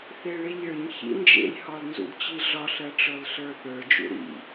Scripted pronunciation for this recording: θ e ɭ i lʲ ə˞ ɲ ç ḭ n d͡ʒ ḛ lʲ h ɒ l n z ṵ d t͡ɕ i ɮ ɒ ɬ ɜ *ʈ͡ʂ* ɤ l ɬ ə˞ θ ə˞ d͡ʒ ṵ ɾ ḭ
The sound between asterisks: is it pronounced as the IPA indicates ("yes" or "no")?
yes